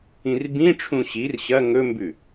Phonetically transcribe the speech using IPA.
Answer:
ĩrbĩʈ͡ʂʰũ ɕir ɕɐ ŋɵmbʉ

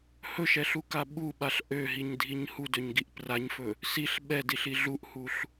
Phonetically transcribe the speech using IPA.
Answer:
hɵʃɛɬuka ɓuɓaɬ ʔøɦiɲdʱiɲ hudøɲɡiʔ praɲfɵ | siɬ ɓɛdiɬi ɮuʔhuɬ

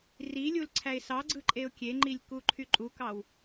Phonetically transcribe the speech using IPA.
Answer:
rilʲul ǀʰæɪ̯sɑɡ͡ǀɯ ǃʼeʊ̯kʲeŋ͡ǃilʲ kuǃʰyǃʼukɑw

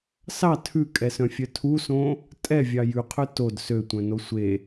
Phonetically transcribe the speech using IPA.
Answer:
sɑ tʰʉkʼɛsœ̃fʲœ tʰusõ | tʼɛvʲɑ jʉqʰø tod søtʷœ̃no sʷe

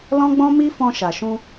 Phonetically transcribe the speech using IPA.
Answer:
lɔ̃˦ɡ͡bɔ̃˦ mi˦fɔ̃˧ ʃa˨ʃũ˧

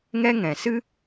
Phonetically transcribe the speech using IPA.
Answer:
ŋɛ˦ŋɛ̃˨ sɨ˦

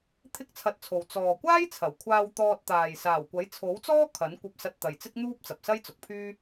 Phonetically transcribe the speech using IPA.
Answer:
t̪ʰɪ˥k̚t͡sʰɐ˧t̚t͡sʰo˨w t͡sɔː˨ kʷaː˥jt͡sʰɐ˨˩wkʷʰaː˧w t̪ɔː˧t̚t̪aː˨j saː˨˩wkʷɐ˨˥jt͡sʰo˨˥wt͡sɔː˥ kʰɐ˨˥nkʷɐ˧p̚ sɐ˧t̚t̪ɐ˨jt͡sɪ˥k̚n̪uː˥p̚ t͡sɐ˨p̚sɐ˥jt͡sʊ˨˥k̚pʰyː˥

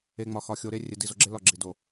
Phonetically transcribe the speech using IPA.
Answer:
e˨ŋ͡mɒ˨ xɒ˨xʲo˨ɾe˦ rʲe˨di˨zo˨ɡ͡ǁe˦ lɒ˦˨ɡ͡ǁi˨ do˨

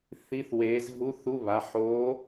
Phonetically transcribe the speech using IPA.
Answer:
θi˧˥˧θweː˨˦zɦu˧˥˧θ u˧˥˧βa˩˧˩ ħo˨˦

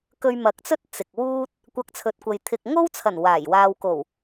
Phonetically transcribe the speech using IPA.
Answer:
kɵ˧ɥmɐ˨˥k̚t͡sɵ˥t̚ t͡sɪ˨k̚wuː˥t̚ | kʷɐ˧k̚t͡sʰɵ˨˥t̚kʷɐ˨j t̪ʰɪ˧k̚ ŋo˥wt͡sʰɐ˨˩n waː˨˩jwaː˧w ko˨˩w

